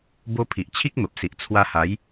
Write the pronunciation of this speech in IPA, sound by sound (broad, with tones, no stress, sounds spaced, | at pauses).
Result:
b o˧ pʰ i˨ ʔ t͡ɕʰ i˦ k̚ m ə˨ p̚ s i˨ ʔ t͡sʰ w a˧ h a˨˦ j